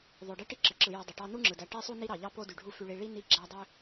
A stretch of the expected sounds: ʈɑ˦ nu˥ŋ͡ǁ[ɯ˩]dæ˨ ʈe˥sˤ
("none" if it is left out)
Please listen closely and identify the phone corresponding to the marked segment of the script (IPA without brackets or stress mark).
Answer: ɯ˩